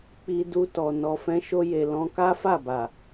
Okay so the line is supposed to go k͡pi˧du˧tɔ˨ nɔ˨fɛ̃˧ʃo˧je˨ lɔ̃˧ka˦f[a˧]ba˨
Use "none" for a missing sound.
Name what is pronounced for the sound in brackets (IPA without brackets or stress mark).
a˦˨